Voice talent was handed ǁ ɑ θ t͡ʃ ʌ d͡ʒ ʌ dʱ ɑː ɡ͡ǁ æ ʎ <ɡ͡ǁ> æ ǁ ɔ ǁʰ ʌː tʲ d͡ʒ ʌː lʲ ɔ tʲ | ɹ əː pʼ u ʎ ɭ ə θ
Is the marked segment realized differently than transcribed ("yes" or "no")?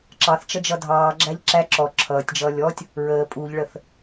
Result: yes